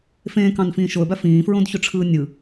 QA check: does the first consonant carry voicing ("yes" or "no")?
no